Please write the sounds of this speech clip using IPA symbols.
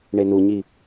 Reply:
ɳ e n u ɲ i

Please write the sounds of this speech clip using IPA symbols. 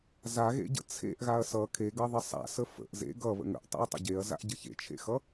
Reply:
z a ɣ ḛ ɟ ə̰ t͡sʰ ḛ ʔ ɣ a ɐ̯ s ʌ kʰ e ɡ ʌ ðˤ ə sˤ a̰ s ə f ə̰ ʔ z ḛ ɡ ʌ β ə̰ ŋ ə̰ ʔ tˤ ḛ ɐ̯ tˤ ə̰ ɟ e ɐ̯ z a̰ ʔ ɟ ə ç ḛ t͡ʃʰ ḛ x ʌ

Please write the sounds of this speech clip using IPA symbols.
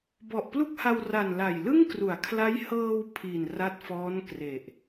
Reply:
b ɔ˨˩ ʔ p l u˥˩ k̚ h a˧ w r a˨˩ n l a˨˩ j l ɯ˥˩ ŋ k r u˩˦ a̯ kʰ l a˦˥ j h ɤː˧ w pʰ i˨˩ n r a˦˥ t̚ f ɔː˦˥ n k r e˨˩ ʔ

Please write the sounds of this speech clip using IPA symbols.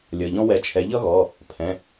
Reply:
lʲ ʌ˩˧˩ ʎ ɔ̃˥ w ɛ˨˥ t͡ʃʰ ɛ˨˥ ʎ ʌ˥ ɣ ɔ˩˧˩ | pʰ ɛ̃˩˧˩

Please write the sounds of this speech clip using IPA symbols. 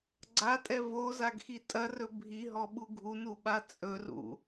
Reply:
ɡ͡ǀ a tʼ ɛ v o z a ɡ x i tʼ ɐ r ɵ bʱ i ɦ ɔ ɓ u ɡʱ u n u ɓ a t͡sʼ ɵ r ṵ

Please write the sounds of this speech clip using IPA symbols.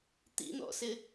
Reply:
t̪ ḭ n̪ ɔ̰ s ɪ

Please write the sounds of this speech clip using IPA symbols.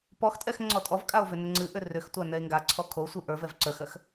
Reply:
p ɔ x tʼ ɛ x ŋ͡ǀ ɔ tʼ ɔ v kʼ a o̯ v ʏ n ʏ ŋ͡ǀ ɨ ʔ ʏ r ʏ x tʷ a n ɛ e̯ ŋ ɡ a ǀʰ ɔ kʰ o sʷ ɨ ʔ ə˞ v ɛ v ǀ ə˞ x ɜ x

